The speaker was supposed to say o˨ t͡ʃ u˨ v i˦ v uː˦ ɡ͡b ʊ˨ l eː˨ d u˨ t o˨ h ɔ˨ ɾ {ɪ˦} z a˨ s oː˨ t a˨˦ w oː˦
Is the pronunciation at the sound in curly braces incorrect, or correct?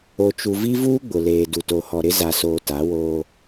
correct